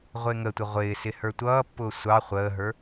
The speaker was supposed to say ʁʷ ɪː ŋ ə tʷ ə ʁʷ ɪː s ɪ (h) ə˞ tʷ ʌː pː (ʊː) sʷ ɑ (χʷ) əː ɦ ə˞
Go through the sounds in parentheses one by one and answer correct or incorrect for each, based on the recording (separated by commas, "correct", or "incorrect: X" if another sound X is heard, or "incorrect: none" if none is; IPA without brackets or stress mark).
correct, correct, correct